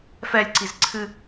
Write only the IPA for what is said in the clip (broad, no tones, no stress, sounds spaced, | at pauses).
f ɛ lʲ ǀ i z ǀʰ ɨ